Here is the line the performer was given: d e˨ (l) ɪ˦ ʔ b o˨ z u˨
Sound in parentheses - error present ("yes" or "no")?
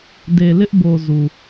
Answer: no